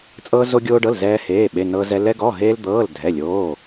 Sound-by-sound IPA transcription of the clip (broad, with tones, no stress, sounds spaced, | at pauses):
t͡sʼ ɤː˧ z o˧ ɡʲ oː˧ ɖ ɤ˩˧˩ l z ɛː˧ h eː˩˧˩ ɓ e˩˧˩ n ɤ˧ z ɛ˧ l ɛ˧ ɡ ɔ˩˧˩ ɦ eː˧ l d̪ ɤː˩˧˩ l dʱ ɛ˩˧˩ lʲ oː˩˧˩